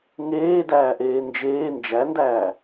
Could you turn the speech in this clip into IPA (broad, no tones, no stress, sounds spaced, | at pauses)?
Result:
ŋ eː d æː ʔ eː n d͡ʒ eː n d͡ʒ æ n d æː